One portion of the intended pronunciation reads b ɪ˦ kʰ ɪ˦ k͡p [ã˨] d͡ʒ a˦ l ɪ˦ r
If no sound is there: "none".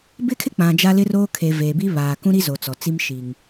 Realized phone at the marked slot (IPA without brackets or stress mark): ã˨